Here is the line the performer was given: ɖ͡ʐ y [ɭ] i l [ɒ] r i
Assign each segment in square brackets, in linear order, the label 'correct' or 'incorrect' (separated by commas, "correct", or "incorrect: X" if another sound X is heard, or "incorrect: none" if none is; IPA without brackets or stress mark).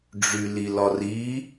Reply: incorrect: l, correct